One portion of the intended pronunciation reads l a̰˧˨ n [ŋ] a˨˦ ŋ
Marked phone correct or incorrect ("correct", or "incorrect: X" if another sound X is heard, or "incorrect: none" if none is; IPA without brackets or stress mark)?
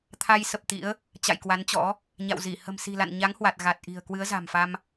incorrect: ɲ